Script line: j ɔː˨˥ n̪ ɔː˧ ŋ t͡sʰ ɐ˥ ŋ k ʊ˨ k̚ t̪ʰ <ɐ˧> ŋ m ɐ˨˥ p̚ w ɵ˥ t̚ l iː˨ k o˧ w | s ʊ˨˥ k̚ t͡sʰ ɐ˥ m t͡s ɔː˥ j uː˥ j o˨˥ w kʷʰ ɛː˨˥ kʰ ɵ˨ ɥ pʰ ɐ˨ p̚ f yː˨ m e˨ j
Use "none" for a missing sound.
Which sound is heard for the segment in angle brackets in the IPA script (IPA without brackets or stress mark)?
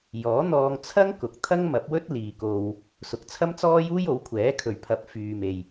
ɐ˥